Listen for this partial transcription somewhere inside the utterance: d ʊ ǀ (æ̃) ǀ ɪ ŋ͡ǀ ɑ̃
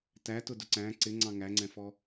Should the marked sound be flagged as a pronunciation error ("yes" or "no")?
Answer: no